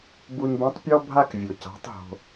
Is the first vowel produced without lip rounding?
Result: no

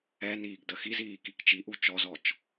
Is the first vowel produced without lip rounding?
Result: yes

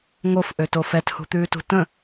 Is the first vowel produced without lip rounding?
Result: no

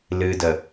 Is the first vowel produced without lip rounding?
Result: yes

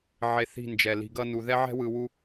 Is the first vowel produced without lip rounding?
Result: yes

